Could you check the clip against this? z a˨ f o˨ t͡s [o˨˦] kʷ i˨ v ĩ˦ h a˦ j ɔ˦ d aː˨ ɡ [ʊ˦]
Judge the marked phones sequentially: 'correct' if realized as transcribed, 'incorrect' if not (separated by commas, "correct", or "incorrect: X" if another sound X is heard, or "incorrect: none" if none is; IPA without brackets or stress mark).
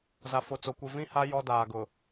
incorrect: o˨, incorrect: ʊ˨